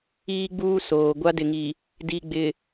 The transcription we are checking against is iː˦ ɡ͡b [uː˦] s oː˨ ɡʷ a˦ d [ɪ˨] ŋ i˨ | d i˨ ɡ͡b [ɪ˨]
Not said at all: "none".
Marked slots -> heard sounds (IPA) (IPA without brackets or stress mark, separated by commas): uː˦, ɪ˨, ɪ˨